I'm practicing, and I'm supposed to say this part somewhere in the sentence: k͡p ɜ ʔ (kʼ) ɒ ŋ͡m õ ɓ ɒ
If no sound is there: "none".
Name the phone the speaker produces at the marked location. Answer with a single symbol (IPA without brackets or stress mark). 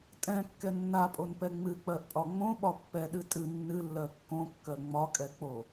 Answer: pʼ